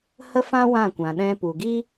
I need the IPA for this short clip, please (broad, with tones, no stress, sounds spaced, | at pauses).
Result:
h ə˦ f ã˦ w ã˦˨ kʷ ã˨ ɗ ɛ̃˧ p u˨ ɡ i˦